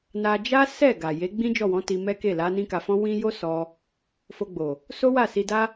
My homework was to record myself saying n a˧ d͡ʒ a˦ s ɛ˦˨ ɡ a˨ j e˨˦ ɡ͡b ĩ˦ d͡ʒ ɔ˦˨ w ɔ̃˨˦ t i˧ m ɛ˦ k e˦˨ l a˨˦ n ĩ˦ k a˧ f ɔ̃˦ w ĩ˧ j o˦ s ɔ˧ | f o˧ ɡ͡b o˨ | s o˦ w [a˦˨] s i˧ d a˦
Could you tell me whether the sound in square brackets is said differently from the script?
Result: no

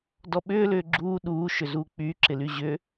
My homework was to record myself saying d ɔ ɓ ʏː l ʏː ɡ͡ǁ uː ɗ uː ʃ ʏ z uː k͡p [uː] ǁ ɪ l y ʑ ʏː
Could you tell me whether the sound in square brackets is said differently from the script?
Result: yes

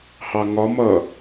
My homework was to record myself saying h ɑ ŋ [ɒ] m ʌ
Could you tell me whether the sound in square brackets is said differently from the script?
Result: no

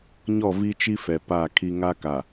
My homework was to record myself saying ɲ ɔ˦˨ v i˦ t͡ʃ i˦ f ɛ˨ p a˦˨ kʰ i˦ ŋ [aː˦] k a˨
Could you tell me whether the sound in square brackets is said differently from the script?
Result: yes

